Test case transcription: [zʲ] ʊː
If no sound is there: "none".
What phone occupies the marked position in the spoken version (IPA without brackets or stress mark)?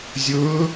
zʲ